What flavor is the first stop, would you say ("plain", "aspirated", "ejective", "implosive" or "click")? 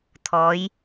aspirated